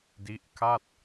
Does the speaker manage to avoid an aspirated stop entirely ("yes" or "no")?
no